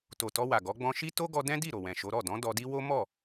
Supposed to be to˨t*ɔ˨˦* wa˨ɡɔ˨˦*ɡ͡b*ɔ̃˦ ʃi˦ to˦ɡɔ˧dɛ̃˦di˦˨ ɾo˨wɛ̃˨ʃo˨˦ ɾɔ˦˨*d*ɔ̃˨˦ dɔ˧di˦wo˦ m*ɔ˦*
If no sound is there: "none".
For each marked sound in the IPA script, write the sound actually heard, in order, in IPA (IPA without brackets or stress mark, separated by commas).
ɔ˧, ɡ͡b, d, ɔ˦˨